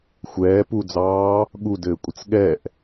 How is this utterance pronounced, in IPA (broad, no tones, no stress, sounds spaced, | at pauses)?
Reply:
xʷ ɛː p u d͡z ɑː | ɠ u d ɘː kʷʼ ə t͡s ɠ ɛ ʔ